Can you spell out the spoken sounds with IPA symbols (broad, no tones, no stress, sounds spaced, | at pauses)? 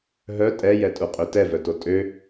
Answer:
ɦ œ tʼ ɛ j ɛ tʼ u qʼ ø t ɛ v œ t o tʼ ø